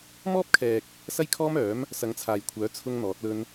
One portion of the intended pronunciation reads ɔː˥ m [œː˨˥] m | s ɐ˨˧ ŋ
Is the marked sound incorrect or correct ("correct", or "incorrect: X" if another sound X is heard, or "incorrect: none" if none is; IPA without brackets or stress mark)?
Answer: correct